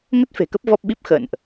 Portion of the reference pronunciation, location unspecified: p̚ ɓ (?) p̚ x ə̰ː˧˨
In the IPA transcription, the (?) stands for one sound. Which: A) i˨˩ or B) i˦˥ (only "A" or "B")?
B